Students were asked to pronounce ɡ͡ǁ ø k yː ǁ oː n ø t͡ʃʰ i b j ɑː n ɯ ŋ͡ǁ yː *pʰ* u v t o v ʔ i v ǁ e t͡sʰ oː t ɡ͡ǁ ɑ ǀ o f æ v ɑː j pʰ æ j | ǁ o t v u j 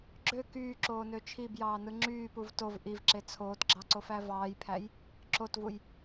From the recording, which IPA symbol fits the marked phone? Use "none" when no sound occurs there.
p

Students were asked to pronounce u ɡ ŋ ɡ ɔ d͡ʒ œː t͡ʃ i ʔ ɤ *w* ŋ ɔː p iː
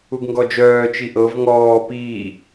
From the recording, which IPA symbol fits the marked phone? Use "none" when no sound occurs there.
v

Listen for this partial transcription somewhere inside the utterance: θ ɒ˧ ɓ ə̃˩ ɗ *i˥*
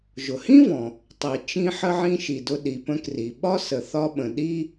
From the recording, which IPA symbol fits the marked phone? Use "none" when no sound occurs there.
i˥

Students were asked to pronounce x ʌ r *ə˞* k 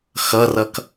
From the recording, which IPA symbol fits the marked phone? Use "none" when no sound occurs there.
ʌ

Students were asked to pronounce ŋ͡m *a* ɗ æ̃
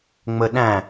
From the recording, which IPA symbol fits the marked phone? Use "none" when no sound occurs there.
ə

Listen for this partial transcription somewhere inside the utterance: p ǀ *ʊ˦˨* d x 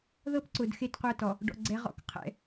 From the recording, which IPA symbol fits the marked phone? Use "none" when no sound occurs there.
ʊ˨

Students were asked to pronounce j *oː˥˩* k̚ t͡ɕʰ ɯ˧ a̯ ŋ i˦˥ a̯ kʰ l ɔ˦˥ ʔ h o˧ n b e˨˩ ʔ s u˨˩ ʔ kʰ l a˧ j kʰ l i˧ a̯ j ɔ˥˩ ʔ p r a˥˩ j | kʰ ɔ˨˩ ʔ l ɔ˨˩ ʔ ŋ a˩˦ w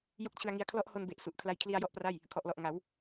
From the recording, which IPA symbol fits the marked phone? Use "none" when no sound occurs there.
o˥˩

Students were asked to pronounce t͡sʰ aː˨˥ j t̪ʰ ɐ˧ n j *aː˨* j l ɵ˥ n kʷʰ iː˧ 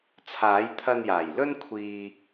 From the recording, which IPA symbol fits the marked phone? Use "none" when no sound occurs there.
aː˨˩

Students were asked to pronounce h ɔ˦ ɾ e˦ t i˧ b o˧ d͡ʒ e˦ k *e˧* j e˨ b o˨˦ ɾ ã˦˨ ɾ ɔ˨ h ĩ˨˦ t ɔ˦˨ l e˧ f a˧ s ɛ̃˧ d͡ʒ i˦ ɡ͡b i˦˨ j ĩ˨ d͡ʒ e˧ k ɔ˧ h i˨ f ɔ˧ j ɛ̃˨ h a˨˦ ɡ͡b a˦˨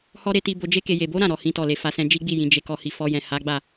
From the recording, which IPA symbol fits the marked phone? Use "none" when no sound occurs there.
e˧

